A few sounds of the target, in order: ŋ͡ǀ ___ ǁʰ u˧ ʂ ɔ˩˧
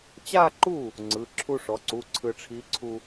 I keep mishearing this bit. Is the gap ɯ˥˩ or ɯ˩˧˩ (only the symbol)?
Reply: ɯ˩˧˩